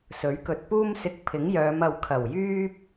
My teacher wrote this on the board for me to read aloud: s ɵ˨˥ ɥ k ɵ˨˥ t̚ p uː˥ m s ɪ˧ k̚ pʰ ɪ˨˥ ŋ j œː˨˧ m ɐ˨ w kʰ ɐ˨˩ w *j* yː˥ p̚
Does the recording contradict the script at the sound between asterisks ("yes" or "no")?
no